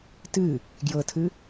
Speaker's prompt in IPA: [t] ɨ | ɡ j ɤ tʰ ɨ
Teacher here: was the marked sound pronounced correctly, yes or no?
yes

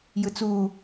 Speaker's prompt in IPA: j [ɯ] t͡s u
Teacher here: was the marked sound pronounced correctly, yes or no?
yes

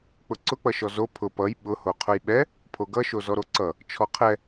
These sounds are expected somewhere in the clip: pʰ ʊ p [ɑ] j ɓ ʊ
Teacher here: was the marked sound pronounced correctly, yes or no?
no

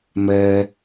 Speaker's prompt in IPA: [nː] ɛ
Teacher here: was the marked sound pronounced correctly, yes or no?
no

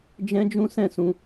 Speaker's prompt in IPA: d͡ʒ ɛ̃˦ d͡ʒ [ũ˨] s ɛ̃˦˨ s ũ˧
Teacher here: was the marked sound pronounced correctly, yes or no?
no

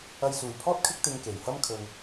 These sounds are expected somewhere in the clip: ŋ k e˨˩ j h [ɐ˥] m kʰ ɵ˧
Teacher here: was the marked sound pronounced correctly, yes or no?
yes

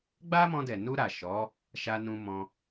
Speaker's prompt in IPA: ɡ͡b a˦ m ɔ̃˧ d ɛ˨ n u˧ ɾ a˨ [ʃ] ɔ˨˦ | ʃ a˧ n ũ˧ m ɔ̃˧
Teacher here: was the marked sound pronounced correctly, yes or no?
yes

